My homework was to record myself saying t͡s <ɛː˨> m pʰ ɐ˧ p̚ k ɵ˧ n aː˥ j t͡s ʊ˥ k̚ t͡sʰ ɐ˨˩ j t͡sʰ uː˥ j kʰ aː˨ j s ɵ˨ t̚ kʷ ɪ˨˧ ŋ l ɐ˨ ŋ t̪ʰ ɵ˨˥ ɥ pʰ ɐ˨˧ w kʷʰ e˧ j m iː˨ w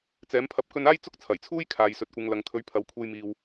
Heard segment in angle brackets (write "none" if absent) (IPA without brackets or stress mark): ɛː˨˥